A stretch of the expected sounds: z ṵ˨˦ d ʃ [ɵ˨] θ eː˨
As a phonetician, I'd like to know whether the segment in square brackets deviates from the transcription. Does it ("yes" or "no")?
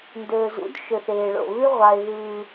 no